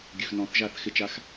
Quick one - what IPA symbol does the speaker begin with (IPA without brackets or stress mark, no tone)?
ɡʲ